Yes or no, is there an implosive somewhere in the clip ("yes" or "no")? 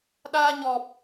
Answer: yes